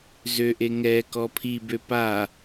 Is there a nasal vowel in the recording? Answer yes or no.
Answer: no